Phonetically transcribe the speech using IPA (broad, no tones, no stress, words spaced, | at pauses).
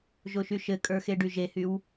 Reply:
ʒoʃyʃɘkʼə˞ xeɖyʒehyw